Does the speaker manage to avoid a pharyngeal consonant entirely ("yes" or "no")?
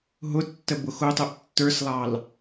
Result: yes